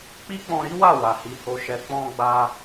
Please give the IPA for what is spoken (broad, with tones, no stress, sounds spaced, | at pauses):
k͡p i˦ k͡p ɔ̃˧ ɾ i˦ w a˦˨ w a˨ h i˨˦ h o˧ ʃ ɛ˧ k͡p ɔ̃˧ ɡ͡b a˧